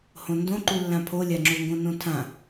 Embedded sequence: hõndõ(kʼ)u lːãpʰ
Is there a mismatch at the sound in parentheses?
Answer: yes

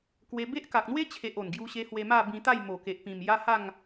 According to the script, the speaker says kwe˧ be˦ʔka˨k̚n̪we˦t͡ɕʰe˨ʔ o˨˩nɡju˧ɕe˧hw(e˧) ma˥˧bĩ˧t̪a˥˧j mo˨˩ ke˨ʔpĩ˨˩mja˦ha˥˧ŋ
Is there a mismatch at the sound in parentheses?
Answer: no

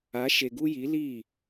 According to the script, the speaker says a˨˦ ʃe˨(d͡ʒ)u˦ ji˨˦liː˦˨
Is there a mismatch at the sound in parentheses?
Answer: yes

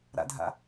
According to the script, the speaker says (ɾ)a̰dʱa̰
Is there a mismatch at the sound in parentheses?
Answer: no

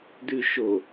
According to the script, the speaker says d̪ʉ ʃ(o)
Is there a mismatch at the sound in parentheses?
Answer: no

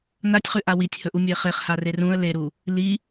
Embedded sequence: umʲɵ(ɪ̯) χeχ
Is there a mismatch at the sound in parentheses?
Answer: no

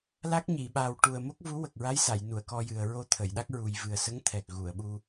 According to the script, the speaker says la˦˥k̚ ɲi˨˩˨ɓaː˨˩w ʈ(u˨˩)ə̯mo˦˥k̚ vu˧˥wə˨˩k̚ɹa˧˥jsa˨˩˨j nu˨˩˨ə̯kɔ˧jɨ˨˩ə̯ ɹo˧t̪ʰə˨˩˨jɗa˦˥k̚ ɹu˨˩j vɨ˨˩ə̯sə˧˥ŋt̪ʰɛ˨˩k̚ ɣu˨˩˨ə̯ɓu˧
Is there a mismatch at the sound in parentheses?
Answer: no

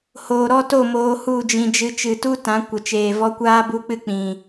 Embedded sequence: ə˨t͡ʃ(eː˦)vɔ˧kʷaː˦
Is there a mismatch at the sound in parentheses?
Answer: yes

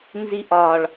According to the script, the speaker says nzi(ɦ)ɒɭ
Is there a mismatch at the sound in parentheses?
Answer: yes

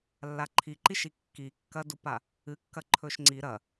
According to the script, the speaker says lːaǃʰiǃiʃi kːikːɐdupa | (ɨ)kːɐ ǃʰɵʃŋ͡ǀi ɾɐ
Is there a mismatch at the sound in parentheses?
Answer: no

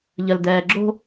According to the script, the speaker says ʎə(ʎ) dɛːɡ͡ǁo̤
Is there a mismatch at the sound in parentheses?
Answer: yes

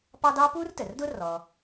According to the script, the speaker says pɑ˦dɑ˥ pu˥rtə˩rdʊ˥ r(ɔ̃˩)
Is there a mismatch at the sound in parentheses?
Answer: yes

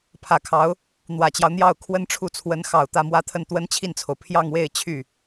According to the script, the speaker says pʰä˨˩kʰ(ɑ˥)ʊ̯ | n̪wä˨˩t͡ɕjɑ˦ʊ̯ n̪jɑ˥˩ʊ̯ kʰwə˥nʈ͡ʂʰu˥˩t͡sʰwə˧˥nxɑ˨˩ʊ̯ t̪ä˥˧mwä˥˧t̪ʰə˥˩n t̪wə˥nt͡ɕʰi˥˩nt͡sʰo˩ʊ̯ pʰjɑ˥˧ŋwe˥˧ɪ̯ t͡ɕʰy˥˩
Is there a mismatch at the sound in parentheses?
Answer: yes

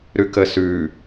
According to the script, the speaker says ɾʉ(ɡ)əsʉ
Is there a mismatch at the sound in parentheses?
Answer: yes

